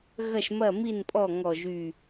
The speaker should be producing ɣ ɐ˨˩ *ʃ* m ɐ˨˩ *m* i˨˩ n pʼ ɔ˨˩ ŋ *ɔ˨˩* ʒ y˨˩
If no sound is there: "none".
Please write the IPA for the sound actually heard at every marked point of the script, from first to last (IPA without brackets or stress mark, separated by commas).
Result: ʃ, m, ɔ˨˩